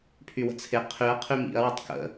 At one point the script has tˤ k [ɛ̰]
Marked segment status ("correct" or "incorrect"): incorrect